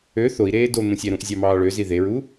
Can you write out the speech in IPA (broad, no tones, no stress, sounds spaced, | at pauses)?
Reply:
ø θ o i̯ ɾ eː d o n̪ ũ sʲ æ ɾ ũ ʔ zʲ ɑ m ɑː ɭ ø z i ð e ɹ u